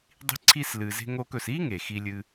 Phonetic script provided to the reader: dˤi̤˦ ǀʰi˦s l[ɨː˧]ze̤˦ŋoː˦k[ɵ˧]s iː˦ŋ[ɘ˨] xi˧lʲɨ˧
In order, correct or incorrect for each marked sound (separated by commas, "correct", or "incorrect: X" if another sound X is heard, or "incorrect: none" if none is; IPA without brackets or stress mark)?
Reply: correct, correct, incorrect: e˨